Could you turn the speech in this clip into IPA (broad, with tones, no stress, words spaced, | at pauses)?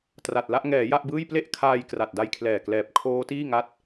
tra˨˩t̚la˥˩ʔ ŋɛː˩˦ ja˥˩ʔbɯː˥˩j ple˥˩ʔkʰaː˧j kra˨˩t̚da˧jkʰlɛː˨˩klɛː˨˩p̚ kʰoː˦˥tiː˥˩ŋa˦˥t̚